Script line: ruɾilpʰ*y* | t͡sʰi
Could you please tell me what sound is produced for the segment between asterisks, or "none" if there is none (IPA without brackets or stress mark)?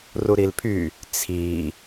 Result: y